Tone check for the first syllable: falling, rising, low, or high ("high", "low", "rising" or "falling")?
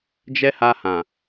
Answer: high